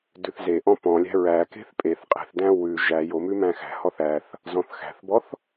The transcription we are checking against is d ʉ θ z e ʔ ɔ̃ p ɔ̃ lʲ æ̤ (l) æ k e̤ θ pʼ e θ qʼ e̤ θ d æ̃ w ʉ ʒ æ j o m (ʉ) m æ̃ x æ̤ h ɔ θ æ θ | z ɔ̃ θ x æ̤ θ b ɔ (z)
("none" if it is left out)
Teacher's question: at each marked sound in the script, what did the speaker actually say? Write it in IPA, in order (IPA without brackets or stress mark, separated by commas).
ɹ, ʉ, θ